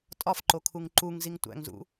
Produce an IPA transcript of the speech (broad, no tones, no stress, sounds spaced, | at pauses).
tʼ ɒ f ǃ o kʰ u ŋ ǃ u ŋ z i ŋ tʷ æ̰ ŋ z ṵ